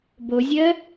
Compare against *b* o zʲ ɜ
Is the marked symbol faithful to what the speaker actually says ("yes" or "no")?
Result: yes